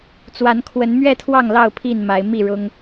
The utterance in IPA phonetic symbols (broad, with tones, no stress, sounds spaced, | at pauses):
t͡s w a˨˦ n kʰ w ə˨˦ n m ɥ ɛ˥˨ t̪ʰ w ɑ˥˨ ŋ l ɑ˥˨ ʊ̯ pʰ i˥˨ n m a˨˦ ɪ̯ m i˥˨ ɻ ʊ˦ ŋ